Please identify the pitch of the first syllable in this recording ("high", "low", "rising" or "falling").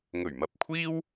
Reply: low